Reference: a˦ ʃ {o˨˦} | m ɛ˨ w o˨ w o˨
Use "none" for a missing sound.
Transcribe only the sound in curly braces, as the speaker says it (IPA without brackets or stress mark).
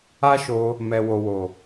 o˧